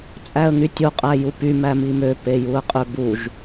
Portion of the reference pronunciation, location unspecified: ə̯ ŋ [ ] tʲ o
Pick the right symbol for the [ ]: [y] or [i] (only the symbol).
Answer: y